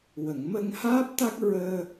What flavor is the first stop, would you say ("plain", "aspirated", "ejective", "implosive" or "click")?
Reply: plain